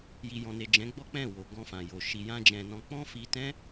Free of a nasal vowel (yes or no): no